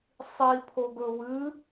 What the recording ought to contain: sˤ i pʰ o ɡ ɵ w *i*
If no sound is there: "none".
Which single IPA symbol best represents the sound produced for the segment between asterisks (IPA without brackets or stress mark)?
ɨ